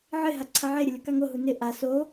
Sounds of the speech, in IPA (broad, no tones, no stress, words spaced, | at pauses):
ʕɪɦa ǀʰaʕeɾʲʊ lʲokaŋoɦu nɪ ʔa so